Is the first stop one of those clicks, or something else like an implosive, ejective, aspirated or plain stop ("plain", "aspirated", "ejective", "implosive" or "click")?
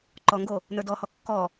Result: click